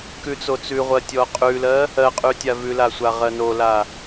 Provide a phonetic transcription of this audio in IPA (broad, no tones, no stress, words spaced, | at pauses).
kʉt͡sot͡sʉʁʷɜ tʲɔqʼʉlɜ | ɜqʼʉ tʲavʉla sʷaʁɜnola